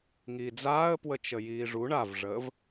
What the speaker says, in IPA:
ŋ iː d͡z aː ə̯ p w ə t͡ʃ ə j iː ʐ u ɳ a v ʐ əː v

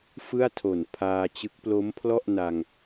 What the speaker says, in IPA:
f ɯ˥˩ a̯ tʰ o˨˩ n pʰ aː˧ t͡ɕ ɯ˦˥ k̚ p l o˦˥ m pʰ l ɔ˥˩ ʔ n a˧ ŋ

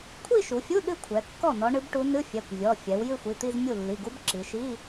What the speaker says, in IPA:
kʷʰ i˥˧ ʃ u˩˧ fʲ u˧˥˧ ɗ ɨ˥˧ kʷʰ ɛ˩˧ kː ɔ˥˩ n ɔ˧˥ ɳ ɨ˧˥ b ʈ u˧˥ n ɨ˧˥˧ fʲ ɛ˩˧˩ kʷ vʲ ɔ˩˧˩ fʲ ɛ˩˧ w j ɨ˥˧ xʷ i˩˧˩ t̪ i˥˧ z mʲ u˥˩ lː i˩˧˩ ɡ u˧˥ b ǁ i˩˧ ʃ i˧˥˧

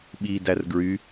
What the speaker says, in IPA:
ɓ i d æ r ɡ ɹ y

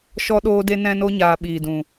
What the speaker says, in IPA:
ʃ ɔ˦ ɗ oː˦ d e˦ n ɛ̃˦ n o˦ ɲ aː˨ ɓ iː˨ d ũ˨

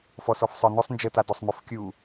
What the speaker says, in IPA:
f ɔ s ɔ f sˤ ə˞ n ʊ sˤ n d͡ʒ ə t a d ɔ sˤ m ʊ f kʲ u

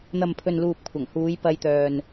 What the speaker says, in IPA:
n̪ ɐ˨ m pʰ ɵ˨ n l uː˨ p̚ kʷʰ ɐ˨˩ ŋ h uː˨˧ j p ɐ˧ j t̪ œː˨ n

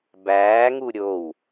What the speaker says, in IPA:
b æː ŋ u ɾʲ o w

